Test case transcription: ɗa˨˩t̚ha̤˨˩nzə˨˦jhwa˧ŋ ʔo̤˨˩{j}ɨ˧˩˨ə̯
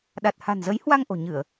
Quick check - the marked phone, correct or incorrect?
incorrect